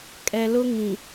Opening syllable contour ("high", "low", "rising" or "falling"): low